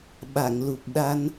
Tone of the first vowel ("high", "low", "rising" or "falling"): low